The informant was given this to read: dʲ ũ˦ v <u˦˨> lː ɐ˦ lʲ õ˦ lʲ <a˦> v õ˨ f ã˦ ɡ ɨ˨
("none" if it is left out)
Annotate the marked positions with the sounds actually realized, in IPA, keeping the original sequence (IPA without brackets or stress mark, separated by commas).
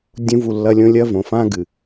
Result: u˦˨, ɐ˦